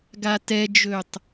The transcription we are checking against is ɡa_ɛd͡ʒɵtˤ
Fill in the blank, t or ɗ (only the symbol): t